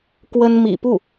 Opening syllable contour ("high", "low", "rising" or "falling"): high